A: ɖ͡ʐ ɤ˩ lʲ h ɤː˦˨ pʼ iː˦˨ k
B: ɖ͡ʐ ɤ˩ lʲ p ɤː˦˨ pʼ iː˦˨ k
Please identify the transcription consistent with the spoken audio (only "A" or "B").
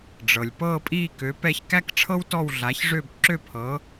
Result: B